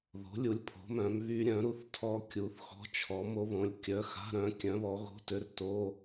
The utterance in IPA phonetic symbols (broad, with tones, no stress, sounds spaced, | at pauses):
ð o̤˨˥ lʲ u˨˥ lʲ pʰ o̤˨˥ m œ̃˨˥ m β y˦˥ ɾʲ œ̃˨˥ ɾ u˦˥ θ tʰ ɔ˦˥ kʲ u˨˥ θ x ɔ̤˧˥˧ t͡ʃʰ ɔ˨˥ m o˦˥ β õ˨˥ lʲ kʲ œ˧˥˧ x a̤˧˥˧ ɾ œ̃˨˥ kʲ œ̃˨˥ β ɔ˨˥ ɣ o̤˧˥˧ t ø˧˥˧ r t o˧˥˧